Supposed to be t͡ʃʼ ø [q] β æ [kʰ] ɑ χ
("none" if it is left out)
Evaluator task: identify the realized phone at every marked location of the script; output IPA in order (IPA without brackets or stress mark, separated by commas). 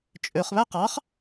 χ, q